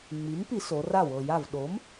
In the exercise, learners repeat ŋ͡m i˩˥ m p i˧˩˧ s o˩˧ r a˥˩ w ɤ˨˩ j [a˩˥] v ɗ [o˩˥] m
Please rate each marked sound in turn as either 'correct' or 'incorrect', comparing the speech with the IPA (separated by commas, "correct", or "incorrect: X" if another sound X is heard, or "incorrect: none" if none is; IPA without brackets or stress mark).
incorrect: a˥˩, correct